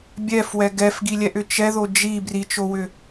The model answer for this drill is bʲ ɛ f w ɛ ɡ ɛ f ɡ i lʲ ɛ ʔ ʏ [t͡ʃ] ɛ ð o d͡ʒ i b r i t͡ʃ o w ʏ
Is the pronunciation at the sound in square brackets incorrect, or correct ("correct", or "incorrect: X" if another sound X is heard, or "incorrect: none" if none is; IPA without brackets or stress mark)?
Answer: correct